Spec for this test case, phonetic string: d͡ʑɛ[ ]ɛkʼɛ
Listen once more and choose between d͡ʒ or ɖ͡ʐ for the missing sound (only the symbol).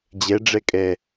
ɖ͡ʐ